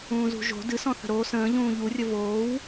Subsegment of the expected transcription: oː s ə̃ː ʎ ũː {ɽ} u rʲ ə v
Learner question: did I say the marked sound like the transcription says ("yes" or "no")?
no